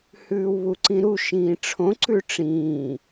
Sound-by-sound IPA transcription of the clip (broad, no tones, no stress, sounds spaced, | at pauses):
h ʉː w β u ǀ ĩ ɾ u ʃ ĩː ʈ͡ʂʰ õ ǀ ʉ ʈ͡ʂ ĩː